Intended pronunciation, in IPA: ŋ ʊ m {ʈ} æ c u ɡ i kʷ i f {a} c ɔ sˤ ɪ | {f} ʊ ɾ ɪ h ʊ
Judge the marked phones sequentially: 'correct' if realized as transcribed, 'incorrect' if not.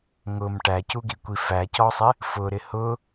correct, incorrect: æ, correct

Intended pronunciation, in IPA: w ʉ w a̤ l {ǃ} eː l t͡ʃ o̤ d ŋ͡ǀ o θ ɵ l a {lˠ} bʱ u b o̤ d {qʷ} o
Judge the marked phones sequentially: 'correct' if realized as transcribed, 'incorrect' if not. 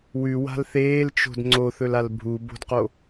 incorrect: θ, incorrect: l, incorrect: q

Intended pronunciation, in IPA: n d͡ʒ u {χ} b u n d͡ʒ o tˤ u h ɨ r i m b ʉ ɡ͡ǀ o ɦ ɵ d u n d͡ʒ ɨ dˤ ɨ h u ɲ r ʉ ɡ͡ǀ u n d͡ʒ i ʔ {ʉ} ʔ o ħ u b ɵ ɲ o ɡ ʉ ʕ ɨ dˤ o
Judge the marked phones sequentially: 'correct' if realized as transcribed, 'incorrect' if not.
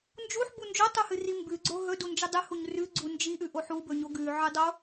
incorrect: ħ, correct

